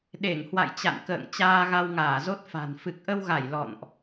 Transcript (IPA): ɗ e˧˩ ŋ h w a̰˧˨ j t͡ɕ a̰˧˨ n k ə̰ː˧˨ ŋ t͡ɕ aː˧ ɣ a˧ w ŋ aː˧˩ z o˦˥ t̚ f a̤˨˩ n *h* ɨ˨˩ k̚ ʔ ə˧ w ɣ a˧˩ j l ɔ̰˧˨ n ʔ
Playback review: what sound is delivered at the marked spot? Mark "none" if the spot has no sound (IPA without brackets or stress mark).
f